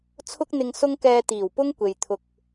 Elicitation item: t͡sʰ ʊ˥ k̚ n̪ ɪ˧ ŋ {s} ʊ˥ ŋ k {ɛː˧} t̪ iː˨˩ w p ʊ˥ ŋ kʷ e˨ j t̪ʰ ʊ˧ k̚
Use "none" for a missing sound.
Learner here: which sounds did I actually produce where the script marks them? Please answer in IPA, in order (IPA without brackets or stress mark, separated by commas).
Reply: s, ɛː˧